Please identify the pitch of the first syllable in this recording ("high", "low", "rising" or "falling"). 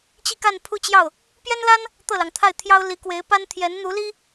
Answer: falling